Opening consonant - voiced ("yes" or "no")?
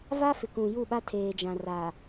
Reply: yes